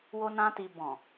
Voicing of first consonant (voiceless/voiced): voiced